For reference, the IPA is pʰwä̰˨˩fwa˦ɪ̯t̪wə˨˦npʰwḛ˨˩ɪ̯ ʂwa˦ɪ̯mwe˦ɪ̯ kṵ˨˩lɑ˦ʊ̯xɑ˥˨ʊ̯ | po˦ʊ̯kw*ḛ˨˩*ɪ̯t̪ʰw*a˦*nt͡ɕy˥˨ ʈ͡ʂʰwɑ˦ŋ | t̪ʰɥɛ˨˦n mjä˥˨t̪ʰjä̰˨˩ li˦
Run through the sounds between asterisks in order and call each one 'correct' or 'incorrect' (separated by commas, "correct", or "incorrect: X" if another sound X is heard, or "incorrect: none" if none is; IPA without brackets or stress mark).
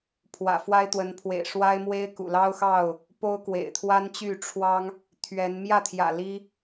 correct, correct